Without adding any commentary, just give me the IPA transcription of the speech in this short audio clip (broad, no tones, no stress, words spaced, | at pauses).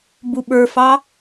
buɓə˞fɑ